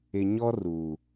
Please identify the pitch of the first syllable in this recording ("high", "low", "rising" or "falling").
low